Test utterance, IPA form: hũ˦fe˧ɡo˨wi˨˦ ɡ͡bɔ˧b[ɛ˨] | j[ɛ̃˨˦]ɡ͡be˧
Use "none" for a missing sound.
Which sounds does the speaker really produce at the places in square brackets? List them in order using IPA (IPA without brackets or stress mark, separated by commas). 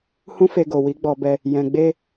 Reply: ɛ˧, ɛ̃˨